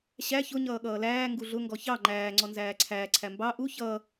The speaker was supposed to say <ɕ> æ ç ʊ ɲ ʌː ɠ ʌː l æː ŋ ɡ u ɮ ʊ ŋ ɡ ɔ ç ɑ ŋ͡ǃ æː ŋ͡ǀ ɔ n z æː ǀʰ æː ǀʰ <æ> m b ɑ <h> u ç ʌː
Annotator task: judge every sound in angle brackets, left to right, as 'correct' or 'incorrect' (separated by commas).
correct, correct, incorrect